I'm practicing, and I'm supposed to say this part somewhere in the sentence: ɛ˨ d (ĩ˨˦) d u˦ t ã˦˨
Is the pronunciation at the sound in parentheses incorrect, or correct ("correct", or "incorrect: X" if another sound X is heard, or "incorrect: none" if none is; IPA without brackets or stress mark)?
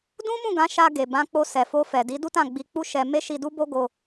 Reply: incorrect: i˨˦